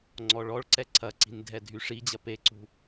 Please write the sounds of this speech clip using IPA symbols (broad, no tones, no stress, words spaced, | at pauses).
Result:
ŋ͡ǀɔɭɔɭǀɛ ǀʰɐǀi̤n dʱɛdʱyʂid͡ʑɐ peǀṳ